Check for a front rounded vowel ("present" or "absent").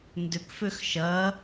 present